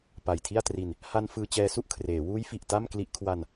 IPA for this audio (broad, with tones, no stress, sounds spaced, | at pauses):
p a˨˩ j tʰ i˥˩ a̯ t r i˧ n | h a˧ n f ɯː˧ t͡ɕ ɛː˧ s u˥˩ ʔ kʰ r eː˩˦ w uː˦˥ j f i˨˩ ʔ t a˥˩ m k l i˦˥ ʔ kʰ w a˧ n